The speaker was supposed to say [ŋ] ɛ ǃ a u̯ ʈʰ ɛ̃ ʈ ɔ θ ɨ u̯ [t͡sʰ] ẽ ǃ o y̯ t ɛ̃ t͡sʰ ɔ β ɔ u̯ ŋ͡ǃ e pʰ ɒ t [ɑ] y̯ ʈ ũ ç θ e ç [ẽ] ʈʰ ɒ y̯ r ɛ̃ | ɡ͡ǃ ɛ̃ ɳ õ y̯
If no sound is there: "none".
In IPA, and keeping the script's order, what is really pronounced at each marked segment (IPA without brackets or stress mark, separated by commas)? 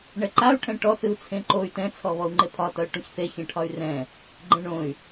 ɳ, t͡sʰ, ʌ, ɛ̃